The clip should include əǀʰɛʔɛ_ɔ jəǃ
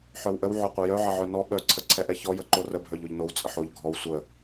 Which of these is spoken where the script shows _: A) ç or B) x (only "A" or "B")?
A